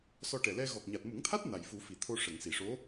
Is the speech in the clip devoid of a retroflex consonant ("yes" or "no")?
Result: no